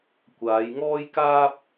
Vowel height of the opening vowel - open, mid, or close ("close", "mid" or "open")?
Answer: open